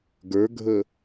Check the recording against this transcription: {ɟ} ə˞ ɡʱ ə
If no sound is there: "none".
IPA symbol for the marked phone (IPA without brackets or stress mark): ɡ